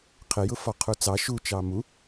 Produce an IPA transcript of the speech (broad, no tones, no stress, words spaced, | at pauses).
qʰɪjʊ fɒqʰut͡sɑ ʃu t͡ʃɑmu